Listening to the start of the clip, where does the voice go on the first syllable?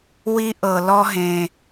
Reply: high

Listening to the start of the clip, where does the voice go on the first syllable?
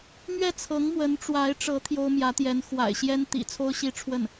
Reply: falling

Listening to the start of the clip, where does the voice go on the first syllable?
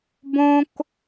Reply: high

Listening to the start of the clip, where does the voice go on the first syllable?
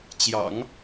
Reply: low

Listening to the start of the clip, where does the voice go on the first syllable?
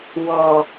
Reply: low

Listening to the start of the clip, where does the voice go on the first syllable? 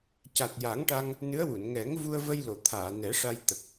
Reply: low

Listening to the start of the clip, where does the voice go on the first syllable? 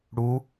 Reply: rising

